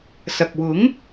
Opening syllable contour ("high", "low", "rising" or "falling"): low